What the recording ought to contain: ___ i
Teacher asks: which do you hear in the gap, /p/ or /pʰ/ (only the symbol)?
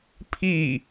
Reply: pʰ